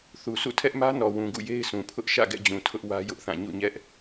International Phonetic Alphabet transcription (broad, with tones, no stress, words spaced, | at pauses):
θu˨sʰṵ˦˨ tʰɛ˦ʔmä˦nɔ˨ wũ˨ɡṵ˦˨je˦ɪ̯sũ˨ pʰʊ˦ʔ ʃä̰˦˨ɡɛ̰˦˨d͡ʑũ˨ tʰʊ˦ʔ wä˦jʊ˦ʔθã˦˨ ɲṵ˦˨ɲɛ˦ʔ